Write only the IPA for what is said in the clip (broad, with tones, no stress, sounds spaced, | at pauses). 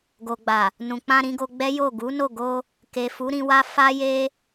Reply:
ɡ o˨ ɡ͡b a˨ | n ũ˨ k͡p ã˧ ɾ ĩ˧ ɡ o˧ ɡ͡b ɛ˦ j o˦˨ ɡ u˨˦ n o˦˨ ɡ o˧ | k e˨ f u˨˦ ɾ ĩ˧ w a˦ f a˦ j e˦